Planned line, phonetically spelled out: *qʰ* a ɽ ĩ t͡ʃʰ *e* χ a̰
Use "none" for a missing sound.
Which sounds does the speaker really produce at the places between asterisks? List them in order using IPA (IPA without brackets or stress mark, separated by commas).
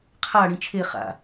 qʰ, e